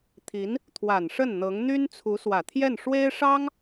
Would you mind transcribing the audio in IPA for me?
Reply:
t̪ʰ i˧˥ n | t̪ʰ w a˨˩ n ʂ ə˥˩ n n̪ ɤ˧˥ ŋ n̪ y˥ n t͡sʰ u˧˥ s w ä˨˩ t̪ʰ j ɛ˥˩ n ʂ w e˥ ɪ̯ ʂ ɑ˥ ŋ

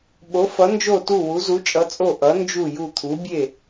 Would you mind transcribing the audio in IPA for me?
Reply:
ɓ o˩˧ f ʌ˩˧ n d͡ʒ o˧˩ t u˧˩ w u˩˧ z u˩˧ t͡ʃʼ ʌ˩˧ t͡sʼ o˧˩ ʔ ʌ˩˧ n d͡ʒ u˧˩ j u˧˩ t̪ʰ u˩˧ bʲ e˧˩

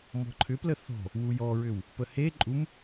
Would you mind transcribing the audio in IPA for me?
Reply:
m ɔ̤ ǃʰ ʏ p l ə θ ɔ̤ | w u j ɔ ɹ ʏ w | p ə h e ǃʼ u m

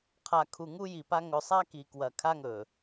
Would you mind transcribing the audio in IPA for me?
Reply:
qʰ a˨ kʰ u˨ ŋ u˦ j i˨ p a˦ ŋ ɵ˨ sˤ a˦ k i˨ k w ɐ˨ kʰ a˦ ŋ ɵ˨

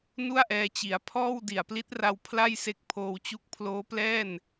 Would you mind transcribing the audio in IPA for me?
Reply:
n u˥˩ a̯ ʔ ɛː˧ t͡ɕ i˩˦ a̯ pʰ ɔː˥˩ w d i˨˩ a̯ p l i˦˥ t̚ r a˧ w pʰ l a˥˩ j s e˦˥ k̚ pʰ oː˧ w t͡ɕ u˦˥ k̚ pʰ l oː˦˥ p l ɛː˥˩ n

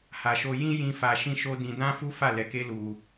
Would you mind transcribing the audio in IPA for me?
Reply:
h a˨ ʃ o˧ j ĩ˦ j ĩ˧ f a˧ ʃ ĩ˦ ʃ o˦ d ĩ˧ d ã˦ f u˦ f a˦˨ l ɛ˨˦ k e˦ l u˧

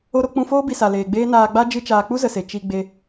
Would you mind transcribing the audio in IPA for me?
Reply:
o˧ ɾ o˧ k͡p ũ˧ f oː˦ b i˧ s a˨ l eː˨ ɡ͡b eː˦ n aː˧ ɡ͡b a˦ d͡ʒ ɨ˦ t͡ʃ aː˧ k͡p u˦ z ə˨ s e˨ t͡ʃ i˧ ɡ͡b e˧

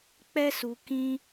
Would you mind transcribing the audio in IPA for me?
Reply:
k͡p ɛ˦ s u˧ k ĩ˦

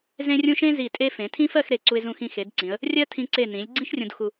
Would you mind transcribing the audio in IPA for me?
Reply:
z ẽ˥ rʲ ũ˥ ʃ ẽ˥ z i˧˩ tʼ e˥ f ẽ˩˧ tʰ ĩ˥ f ɜ˥˧ x ɾ e˧˩ ǀ u˧ ɪ̯ z ũ˧ x ĩ˧ x e˩˧ d ǀ ĩ˩˧ ə̯ | rʲ ɜ˥ tʰ ĩ˧ ǀ e˧˩ n ĩ˩˧ lʲ ɡ͡ǀ ĩ˥ ʃ rʲ ũ˧ d x u˧

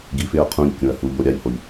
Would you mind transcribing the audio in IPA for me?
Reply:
ɡ i f ɪ ɐ̯ qʰ ũ ʎ kʲ ũ ɐ̯ h u ʎ o ɾʲ a ʎ h o ʎ

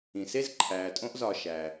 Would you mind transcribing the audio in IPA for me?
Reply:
ĩ˩ s e˥ z ǃʰ æː˩ tʼ õ˦ ʔ z ɒ˨ ʃ æ˩

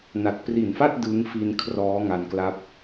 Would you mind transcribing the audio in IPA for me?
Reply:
n a˨˩ t̚ p r i˨˩ n f a˥˩ t̚ d ɯ˦˥ ŋ f i˧ n kʰ r ɔː˦˥ ŋ a˧ n k l a˦˥ p̚

